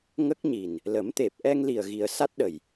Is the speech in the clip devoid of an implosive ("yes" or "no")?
no